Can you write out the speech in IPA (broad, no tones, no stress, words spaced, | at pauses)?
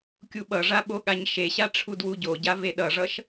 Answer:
kʲuɓʌʐa ɓoɠaɲʃeɕa ʈ͡ʂʰudwuɟoɟa veɗʌʐʌʃ